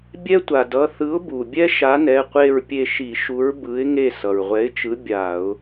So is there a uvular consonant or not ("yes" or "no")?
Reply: yes